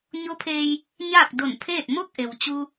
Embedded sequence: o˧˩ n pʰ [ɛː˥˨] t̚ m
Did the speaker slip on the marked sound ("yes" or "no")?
yes